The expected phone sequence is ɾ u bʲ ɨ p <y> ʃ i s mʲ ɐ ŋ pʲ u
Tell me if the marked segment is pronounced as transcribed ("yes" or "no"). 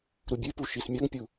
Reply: no